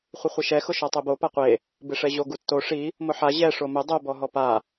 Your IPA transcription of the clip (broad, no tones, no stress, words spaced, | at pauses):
χʷɪχʷɪʃɛ xʊʃɔtˤɛbo paqʷe | bɪʂɛʑo ɡutːo ʂi | mʊħa ʑɛ ʂomʊ dˤo bɔɦɔpa